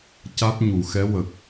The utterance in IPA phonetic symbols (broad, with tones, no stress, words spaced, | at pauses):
ca˦˥t̚ ɲu˨˩˨xɛ˧˥wə˨˩k̚